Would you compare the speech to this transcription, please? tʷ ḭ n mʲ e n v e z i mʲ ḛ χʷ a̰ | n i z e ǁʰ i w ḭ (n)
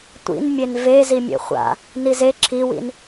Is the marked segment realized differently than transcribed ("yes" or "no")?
no